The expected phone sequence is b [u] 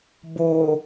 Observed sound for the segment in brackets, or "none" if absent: o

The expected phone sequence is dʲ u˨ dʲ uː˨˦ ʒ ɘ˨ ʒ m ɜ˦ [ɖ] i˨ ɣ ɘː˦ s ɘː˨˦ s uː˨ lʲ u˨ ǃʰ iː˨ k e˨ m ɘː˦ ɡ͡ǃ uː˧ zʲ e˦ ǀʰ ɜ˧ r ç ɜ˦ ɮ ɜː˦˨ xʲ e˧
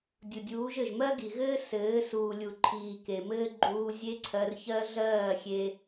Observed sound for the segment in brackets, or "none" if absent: ɡ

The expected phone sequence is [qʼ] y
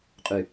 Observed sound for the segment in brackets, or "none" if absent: qʼ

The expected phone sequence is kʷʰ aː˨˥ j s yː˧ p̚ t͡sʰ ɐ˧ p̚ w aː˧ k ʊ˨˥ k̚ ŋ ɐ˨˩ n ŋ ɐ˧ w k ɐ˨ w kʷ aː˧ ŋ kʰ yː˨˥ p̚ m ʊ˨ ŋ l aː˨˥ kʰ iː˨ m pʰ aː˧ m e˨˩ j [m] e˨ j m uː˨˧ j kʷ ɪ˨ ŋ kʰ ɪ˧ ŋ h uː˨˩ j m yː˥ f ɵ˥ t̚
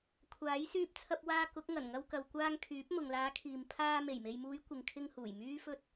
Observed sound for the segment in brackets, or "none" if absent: m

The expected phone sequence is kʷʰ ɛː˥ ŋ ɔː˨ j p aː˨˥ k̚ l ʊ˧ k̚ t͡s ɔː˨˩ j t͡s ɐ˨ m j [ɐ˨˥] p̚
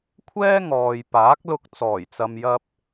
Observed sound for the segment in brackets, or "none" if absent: ɐ˧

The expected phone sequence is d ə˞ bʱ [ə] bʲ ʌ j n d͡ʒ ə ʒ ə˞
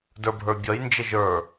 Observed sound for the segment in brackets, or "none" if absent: ə˞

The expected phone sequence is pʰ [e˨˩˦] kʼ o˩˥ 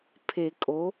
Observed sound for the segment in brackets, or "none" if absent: e˨˩˦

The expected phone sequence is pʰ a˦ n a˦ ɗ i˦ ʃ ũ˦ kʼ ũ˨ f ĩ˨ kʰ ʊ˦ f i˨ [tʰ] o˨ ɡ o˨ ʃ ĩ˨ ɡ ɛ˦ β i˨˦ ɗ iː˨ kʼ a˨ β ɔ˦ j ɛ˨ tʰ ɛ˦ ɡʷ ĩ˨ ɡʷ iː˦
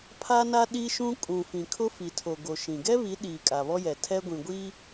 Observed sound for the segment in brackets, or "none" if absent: tʰ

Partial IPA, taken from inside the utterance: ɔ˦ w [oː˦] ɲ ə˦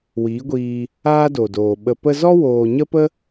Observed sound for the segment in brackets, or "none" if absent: oː˨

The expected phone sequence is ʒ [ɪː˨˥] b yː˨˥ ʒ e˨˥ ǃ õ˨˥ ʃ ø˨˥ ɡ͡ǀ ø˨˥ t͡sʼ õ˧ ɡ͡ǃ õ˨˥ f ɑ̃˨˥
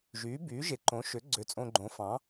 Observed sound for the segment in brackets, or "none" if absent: yː˨˥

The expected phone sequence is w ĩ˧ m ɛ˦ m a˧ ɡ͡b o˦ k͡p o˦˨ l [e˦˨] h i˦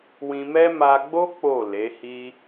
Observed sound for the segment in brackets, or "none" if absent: e˨˦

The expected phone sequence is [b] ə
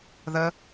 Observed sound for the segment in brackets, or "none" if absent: ð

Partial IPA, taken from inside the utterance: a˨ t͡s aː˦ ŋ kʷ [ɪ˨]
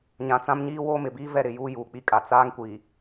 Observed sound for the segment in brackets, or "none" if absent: i˨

